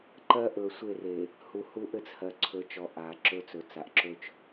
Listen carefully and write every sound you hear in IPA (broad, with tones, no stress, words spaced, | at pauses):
ǃɜ˦ ʔɵ˨sʷe˦˨re˨ | hu˨hu˦ʔɘ˦t͡shɜ˨ ǀʰɵ˨˦t͡ʃɔ˨ ʔa˨ǁɵ˦ t͡sɵ˨t͡sa˨ʔǁɵ˦t͡ʃ